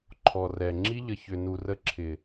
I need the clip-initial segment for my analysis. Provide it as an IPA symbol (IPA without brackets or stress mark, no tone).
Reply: ǃʰ